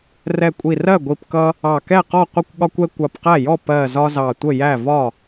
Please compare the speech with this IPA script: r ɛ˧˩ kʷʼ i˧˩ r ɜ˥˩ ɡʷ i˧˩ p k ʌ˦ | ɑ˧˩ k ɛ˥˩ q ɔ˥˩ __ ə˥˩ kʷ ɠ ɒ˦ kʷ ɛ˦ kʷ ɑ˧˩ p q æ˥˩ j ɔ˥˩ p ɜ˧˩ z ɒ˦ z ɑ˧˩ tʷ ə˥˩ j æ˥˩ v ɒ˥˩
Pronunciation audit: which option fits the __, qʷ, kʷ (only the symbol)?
qʷ